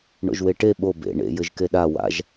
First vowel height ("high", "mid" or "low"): mid